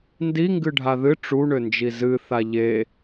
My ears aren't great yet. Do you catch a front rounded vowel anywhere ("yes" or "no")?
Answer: yes